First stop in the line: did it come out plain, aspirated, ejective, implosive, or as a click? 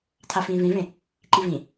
aspirated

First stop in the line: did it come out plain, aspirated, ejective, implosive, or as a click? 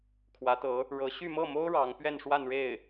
aspirated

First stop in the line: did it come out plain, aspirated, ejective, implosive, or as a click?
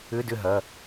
plain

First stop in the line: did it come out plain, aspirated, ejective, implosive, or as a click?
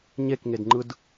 plain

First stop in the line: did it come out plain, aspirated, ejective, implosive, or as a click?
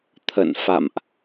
aspirated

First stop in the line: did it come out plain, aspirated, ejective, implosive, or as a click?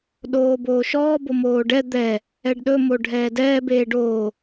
implosive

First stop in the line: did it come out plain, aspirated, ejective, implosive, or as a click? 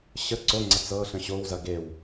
click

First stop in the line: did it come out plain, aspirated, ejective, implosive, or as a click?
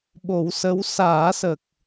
implosive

